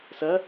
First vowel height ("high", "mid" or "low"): low